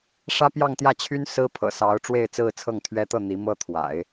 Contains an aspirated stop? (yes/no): yes